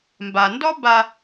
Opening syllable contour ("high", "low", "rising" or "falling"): low